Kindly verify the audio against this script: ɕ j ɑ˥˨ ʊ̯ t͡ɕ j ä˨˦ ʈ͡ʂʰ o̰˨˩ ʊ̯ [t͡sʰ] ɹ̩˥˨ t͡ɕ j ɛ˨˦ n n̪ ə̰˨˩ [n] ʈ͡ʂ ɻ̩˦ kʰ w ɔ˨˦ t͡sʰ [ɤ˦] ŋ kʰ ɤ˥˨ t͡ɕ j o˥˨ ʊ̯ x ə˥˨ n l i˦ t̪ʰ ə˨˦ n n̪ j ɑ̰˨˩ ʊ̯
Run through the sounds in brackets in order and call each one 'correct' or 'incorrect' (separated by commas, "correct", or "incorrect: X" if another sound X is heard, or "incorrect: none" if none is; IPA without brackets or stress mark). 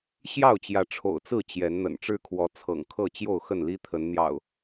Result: incorrect: t͡s, correct, incorrect: ɤ̰˨˩